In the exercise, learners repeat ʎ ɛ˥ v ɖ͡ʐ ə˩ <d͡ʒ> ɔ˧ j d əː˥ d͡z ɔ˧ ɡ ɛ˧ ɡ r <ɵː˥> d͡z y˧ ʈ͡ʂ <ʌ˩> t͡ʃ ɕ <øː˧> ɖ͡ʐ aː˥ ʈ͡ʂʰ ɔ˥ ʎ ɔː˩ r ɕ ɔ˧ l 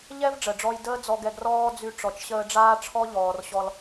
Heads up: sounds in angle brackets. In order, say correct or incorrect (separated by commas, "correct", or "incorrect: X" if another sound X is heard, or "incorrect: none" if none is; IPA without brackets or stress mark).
incorrect: ɖ͡ʐ, incorrect: ɔː˥, incorrect: ɔ˩, incorrect: əː˧